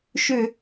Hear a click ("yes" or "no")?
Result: no